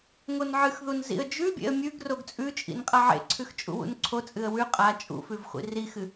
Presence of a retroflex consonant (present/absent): absent